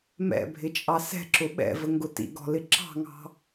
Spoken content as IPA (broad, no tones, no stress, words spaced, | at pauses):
mɛ̰bʱɪt͡ʃʼɑ sɛ̤ǁʊ ɓɛ̰vəŋɡʊ tḭɡɔ̤lɪ ǁɑ̤ŋɑ̤